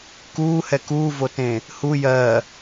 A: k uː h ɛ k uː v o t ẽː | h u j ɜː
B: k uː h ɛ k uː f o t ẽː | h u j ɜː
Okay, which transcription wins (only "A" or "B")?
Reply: A